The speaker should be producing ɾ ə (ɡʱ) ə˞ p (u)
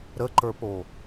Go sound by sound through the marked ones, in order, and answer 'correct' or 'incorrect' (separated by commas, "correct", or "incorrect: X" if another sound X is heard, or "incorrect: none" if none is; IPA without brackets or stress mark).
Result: incorrect: ǃ, incorrect: o